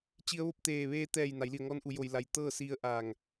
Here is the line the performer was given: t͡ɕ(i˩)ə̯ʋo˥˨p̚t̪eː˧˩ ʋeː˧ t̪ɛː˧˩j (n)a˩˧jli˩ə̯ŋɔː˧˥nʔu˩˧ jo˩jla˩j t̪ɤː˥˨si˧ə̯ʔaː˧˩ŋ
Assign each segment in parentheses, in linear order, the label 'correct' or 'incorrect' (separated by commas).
incorrect, correct